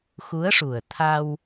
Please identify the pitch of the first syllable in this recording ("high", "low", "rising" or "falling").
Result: rising